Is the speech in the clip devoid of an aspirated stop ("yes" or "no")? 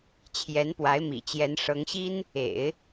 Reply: no